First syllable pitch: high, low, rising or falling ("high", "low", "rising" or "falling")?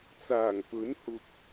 low